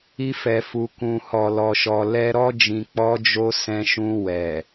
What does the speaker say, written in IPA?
i˧ f ɛ˨ f u˨ k ũ˨ h ɔ˨ l ɔ˨ ʃ ɔ˨ l ɛ˧ ɾ ɔ˧ d͡ʒ ĩ˨ k͡p ɔ˧ d͡ʒ o˧ s ɛ̃˧ ʃ ũ˧ w ɛ˨

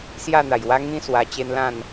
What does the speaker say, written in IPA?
s j a˥˧ n̪ a˨˩ j w a˦ ŋ ĩ˦ s w a˧ t͡ɕ e˦ n l ã˥˧ n

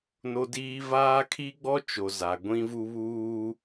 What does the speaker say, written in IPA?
n o˦ d iː˦ v aː˦ kʰ i˦ ɡ͡b ɔ˦ t͡ʃ o˨ z a˨ ɡʷ ĩ˦ v u˦ β uː˦

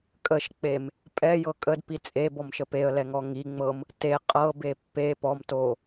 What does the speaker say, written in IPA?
kʼ ə ʃ k͡p e m | pʼ ɛ j ɤ kʼ ə d p i t͡sʼ e b ɔ m ʃ ə p e ə̯ l ɛ ŋ ɔ ŋ i ŋ͡m ɤ m | t e qʼ ɤ b e pː e p ɔ m t o

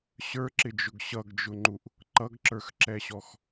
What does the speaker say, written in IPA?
ɕ ə˞ ǁ ɪ d͡ʒ ʊ ɡ ɕ ʌ ɡ d͡ʒ ʊ ŋ͡ǃ u ʔ | ǃ ʌ ɡ ǁ ə˞ x ǁ ɛ ɕ ɔ x

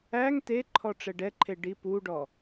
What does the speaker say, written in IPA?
æ ŋ t e ǃʰ ɔ ʈ͡ʂ ɛ ɖ ɛ ǃʰ e ɖ i p u ɖ ɔ

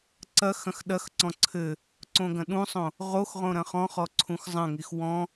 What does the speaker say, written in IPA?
ǀ ɐ x ɐ̃ x ɗ ɐ x ǀ ɔ̃ ǀʰ ɘ | ǀ õ ɡ ɐ̃ ɗ ũ sˤ õ | ʁ o x ʁ õ ɾ ɐ̃ χ ɔ̃ χ ɔ ǀʰ ũ x zˤ ɐ̃ ŋ i x w ɔ̃

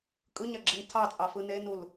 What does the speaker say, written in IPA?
kʼ ɯ ɲ a ɡ͡ǁ e n tʰ ɑ t͡sʼ ɑ f ɯ n e n u l

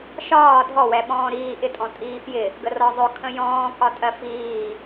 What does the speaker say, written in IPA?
ʃ ɒː dʱ ɔ w ɛ ɓ ɔ̃ː ɾ iː ʔ ɪ tʼ ɔ̃ tʼ iː f j ɪ | ɡ ə r ɒ zˤ ʊ kʰ ə̃ j ɔ̃ː k ɒ tʼ ɜ f iː

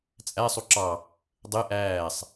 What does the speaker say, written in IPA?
t͡sʼ æ sˤ u ǁ ɑ | dˤ e ʔ æː sˤ

